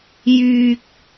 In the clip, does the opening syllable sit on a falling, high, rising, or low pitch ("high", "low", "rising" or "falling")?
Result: low